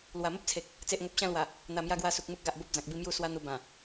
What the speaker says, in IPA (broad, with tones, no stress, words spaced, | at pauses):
lwa˨˩mə˦p̚t͡sʰe˨k̚ | t͡se˨ʔŋo˨p̚ɕã˧lwa˨˩ | n̪a˨˩mja˧ɡwa˧ su˨k̚ mu˦k̚ɡa˨ʔ bo˦p̚d͡zã˨k̚bi˥˧ mju˥˧ swa˦n̪u˧ bã˨˩